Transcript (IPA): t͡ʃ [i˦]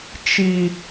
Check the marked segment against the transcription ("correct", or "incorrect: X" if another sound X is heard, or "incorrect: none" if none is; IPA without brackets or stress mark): correct